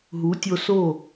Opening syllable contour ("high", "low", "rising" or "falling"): rising